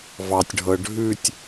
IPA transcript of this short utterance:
v ɑ tʲ ɖʱ ɤ ɖʱ ʉ tʲ

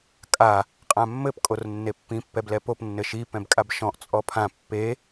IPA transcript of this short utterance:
kʼ a | qʼ ã mː ɘ p kʼ o r nː e pː ĩ pː ɛ b l ɛ p o p nː ɘ ʃ i p ɛ̃ b kʼ a b ʃ ɔ̃ ʔ t͡sʼ ɔ pʰ ã pː e

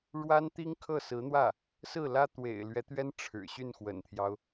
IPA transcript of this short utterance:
ɻ w a˥ n t̪ i˥ ŋ kʰ ɤ˥˩ s ɹ̩˧˥ n̪ w ä˥˩ | s ɹ̩˥˩ l ä˥ t̪ w ḛ˨˩ ɪ̯ l ɥ ɛ˧˥ t̪ ɥ ɛ˥ n ʈ͡ʂʰ ɻ̩˨˩ ɕ y˥˩ n x w ə̰˨˩ n t̪ʰ j ɑ˦ ʊ̯

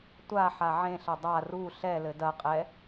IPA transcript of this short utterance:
tʷ a ħ a ʕ ẽ ɬ ɐ dˤ a r u ɬ ɛ l ɘ d ɐ qʼ ɛ

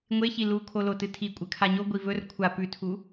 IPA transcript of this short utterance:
ŋʷ e ç i l u kʰ o l o t ɨ tʰ i kʷʼ ɨ kʰ a ɲ o ɡʷ i v ɵ r kʷʰ a p ʉ tʰ u

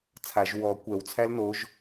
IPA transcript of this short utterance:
t͡sʰ a ʒ w ɔ kʷ ɛ w t͡sʰ æ l n o ʒ

